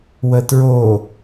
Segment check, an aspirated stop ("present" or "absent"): absent